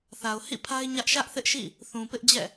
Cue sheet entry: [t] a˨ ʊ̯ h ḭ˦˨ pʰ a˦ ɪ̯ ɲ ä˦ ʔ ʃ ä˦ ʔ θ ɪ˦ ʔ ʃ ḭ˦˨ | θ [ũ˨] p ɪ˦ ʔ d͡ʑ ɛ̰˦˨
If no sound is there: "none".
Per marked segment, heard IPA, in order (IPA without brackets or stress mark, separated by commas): θ, ũ˨